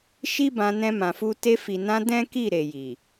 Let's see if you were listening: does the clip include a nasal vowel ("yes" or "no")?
yes